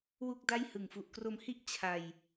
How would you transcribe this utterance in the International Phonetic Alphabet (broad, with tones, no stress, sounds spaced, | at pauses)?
w u˥˩ k̚ d a˥˩ j h ɯ˨˩ ŋ f u˨˩ ʔ k r o˧ m h i˥˩ ʔ t͡ɕʰ a˧ j